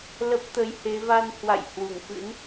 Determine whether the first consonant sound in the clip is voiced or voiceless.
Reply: voiced